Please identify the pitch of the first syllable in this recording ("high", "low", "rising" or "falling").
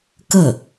falling